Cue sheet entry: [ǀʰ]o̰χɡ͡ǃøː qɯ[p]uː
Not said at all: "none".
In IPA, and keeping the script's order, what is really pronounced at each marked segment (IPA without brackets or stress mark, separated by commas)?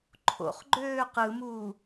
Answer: ǃʰ, m